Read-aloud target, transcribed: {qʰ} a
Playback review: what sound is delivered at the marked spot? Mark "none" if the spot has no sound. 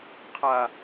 qʰ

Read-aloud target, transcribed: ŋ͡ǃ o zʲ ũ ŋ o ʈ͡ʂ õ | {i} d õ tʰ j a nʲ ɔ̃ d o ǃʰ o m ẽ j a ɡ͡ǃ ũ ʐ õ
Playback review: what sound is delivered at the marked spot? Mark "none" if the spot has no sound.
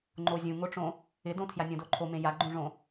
ɪ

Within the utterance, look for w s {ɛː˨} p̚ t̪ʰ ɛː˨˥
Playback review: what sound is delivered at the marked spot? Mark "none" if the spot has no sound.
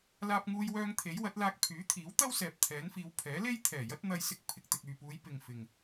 ɛː˨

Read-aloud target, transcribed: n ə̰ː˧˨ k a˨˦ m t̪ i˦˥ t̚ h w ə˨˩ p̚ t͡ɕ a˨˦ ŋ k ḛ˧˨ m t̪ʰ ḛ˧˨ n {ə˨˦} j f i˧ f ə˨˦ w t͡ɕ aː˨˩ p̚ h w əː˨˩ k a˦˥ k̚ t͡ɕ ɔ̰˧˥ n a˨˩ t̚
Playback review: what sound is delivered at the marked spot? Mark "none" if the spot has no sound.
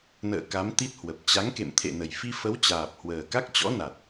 ə˨˩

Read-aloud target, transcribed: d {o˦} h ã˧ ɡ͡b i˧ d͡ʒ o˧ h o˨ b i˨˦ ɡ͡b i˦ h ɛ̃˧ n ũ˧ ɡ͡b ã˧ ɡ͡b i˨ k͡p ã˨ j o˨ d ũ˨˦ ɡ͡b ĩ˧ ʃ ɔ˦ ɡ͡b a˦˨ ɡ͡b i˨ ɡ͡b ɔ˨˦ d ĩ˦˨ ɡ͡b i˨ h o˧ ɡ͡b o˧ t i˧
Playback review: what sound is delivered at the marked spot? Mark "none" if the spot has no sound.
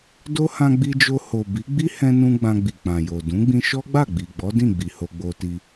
o˦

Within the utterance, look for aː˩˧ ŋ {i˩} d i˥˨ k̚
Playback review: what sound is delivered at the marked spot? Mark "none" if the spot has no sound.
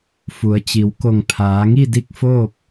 i˥˨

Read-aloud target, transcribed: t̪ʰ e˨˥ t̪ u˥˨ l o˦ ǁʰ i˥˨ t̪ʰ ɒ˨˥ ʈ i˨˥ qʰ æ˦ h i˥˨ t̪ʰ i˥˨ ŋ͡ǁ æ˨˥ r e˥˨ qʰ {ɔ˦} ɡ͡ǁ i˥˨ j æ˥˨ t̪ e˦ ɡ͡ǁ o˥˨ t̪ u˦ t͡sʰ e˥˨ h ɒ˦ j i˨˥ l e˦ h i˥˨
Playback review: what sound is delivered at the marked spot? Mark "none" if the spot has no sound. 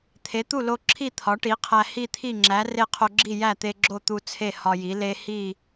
o˦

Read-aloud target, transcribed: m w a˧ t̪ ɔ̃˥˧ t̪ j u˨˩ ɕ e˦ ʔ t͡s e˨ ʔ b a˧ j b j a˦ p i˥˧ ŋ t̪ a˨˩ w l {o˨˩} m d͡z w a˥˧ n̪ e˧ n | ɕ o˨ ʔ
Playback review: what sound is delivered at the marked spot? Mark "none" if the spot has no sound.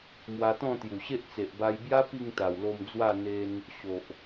o˧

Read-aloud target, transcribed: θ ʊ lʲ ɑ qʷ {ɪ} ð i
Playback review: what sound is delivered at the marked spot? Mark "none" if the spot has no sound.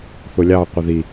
ɪ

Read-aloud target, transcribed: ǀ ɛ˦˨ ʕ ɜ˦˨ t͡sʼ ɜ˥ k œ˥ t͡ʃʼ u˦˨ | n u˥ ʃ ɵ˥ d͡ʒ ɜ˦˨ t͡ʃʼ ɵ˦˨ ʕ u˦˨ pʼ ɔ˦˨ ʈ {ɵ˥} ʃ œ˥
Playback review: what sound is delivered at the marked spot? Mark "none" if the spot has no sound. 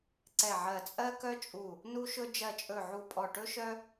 ɵ˥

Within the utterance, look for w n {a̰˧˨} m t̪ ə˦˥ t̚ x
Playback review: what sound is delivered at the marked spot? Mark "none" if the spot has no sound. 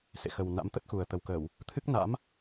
a̰˧˥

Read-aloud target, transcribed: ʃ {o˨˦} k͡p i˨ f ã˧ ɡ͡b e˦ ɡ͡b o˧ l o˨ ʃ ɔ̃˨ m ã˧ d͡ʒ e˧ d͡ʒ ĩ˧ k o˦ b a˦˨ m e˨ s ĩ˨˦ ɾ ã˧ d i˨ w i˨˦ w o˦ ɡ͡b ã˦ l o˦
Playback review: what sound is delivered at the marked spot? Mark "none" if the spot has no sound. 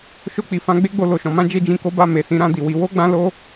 o˧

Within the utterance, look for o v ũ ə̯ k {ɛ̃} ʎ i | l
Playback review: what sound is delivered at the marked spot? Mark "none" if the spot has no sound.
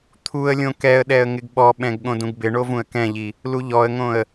ɛ̃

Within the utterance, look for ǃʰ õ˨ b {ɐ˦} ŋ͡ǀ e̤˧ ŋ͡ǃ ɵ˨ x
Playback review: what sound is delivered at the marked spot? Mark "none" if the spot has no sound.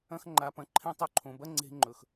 ɐ˦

